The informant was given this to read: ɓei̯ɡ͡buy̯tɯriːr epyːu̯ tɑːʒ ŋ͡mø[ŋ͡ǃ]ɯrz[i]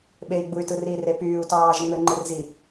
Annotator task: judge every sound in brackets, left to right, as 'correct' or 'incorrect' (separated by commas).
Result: correct, correct